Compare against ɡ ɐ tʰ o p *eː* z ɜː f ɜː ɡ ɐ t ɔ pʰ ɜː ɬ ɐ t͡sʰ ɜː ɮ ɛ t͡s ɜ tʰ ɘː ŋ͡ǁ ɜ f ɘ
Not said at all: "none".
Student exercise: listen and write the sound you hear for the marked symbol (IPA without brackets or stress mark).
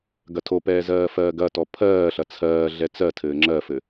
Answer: ɛː